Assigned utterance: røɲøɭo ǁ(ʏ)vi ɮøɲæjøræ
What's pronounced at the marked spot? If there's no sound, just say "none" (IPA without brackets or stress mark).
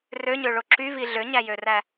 y